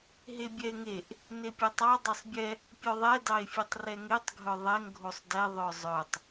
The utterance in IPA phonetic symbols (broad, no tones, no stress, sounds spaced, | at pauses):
ɦ e bʲ ɛ e̯ ŋ e ʔ | n e pʲ ɛ tˤ ɑ dˤ e sˤ bʲ ɛ | pʲ œ ðˤ ɛ d ɑ e̯ fʲ e tˤ r ɛ ŋ e tˤ ɡʱ œ ðˤ ɛ ŋ ɡʱ o sˤ d ɛ ðˤ œ zˤ œ tˤ